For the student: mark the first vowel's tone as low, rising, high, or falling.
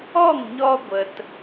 falling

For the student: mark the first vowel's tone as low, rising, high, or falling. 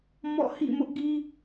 falling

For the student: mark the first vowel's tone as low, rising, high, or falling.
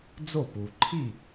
falling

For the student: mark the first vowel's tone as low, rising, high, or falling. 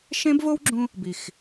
high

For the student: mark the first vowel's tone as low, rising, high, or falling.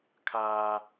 high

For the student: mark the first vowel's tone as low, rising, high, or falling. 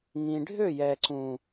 low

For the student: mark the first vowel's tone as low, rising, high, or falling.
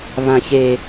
low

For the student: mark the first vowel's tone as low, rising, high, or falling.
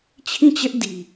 falling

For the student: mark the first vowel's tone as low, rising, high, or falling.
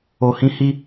high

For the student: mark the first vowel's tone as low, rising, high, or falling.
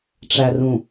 low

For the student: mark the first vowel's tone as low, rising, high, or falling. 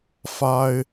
high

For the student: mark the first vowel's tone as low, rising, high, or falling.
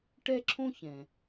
high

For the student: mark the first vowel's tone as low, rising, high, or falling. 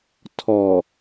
low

